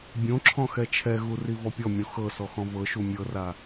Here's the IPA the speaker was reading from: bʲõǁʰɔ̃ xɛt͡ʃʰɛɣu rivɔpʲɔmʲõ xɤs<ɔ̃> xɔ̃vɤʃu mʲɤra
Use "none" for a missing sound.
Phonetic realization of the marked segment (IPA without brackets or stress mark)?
ɔ